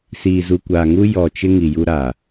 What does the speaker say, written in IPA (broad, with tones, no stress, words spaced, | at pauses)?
siː˨zu˨kʷaː˨ŋu˦ jɔ˨t͡ʃɪ˦ ŋi˨ju˦ɾa˨